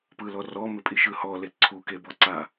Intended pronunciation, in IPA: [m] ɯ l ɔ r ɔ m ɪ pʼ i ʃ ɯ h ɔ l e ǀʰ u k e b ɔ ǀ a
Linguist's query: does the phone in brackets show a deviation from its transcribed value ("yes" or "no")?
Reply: yes